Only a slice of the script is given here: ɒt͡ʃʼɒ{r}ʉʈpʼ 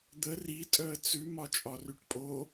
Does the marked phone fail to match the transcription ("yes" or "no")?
no